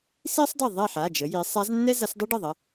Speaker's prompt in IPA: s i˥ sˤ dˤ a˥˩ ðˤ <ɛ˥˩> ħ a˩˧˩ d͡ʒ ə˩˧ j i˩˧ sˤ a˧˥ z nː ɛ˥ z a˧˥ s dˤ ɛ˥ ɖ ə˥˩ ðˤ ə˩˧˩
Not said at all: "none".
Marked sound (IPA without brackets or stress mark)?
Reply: ɛ˥˩